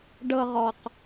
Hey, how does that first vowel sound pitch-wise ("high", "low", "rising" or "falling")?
low